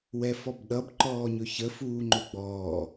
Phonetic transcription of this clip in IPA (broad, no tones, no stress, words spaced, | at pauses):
wɛfɔbɗʌb ǃɔːɲɵçə fuːŋ͡ǃɵɡ͡bɔː